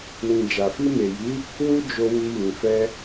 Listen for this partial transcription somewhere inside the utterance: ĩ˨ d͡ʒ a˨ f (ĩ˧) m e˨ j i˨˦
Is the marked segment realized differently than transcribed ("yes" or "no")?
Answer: yes